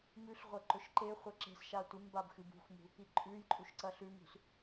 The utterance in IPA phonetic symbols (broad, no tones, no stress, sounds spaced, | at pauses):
m ʉ ɬ ʁʷ ɐ ǃ ɵ ʃ ǃ e χʷ a ǁ e̤ s ʃ a tʷ i m b a b x ɨ b ṳ x m ṳ | i ǃʼ ʉ j ǃʼ u ʃ ǀ ɐ ɬ ʉ m ṳ s